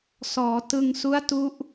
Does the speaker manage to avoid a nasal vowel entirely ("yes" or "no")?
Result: yes